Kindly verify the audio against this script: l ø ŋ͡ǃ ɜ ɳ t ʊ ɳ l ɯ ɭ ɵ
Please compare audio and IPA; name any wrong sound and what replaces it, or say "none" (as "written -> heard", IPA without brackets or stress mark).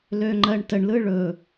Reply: ʊ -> ə